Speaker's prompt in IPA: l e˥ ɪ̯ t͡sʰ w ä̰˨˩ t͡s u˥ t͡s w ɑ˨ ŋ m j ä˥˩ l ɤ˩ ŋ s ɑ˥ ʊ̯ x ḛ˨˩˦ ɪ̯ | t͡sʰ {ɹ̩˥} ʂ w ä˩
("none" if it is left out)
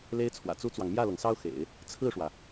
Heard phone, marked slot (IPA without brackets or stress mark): ɹ̩˥˩